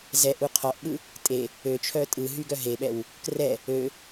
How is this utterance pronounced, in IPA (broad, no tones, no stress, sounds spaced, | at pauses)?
z ɛ ʔ u qʰ ɔ ʔ ɓ ɯ | tʼ e | ø t͡ʃʰ œ tʼ ɯ ɦ y ɡ œ ɦ e ɓ ɛ w | k r ɛ | ø